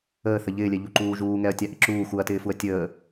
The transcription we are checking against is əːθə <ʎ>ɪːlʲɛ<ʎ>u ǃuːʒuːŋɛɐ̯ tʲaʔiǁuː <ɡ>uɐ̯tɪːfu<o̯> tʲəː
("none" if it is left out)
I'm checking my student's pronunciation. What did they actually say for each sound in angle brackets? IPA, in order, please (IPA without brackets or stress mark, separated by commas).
ʎ, ʎ, x, ɐ̯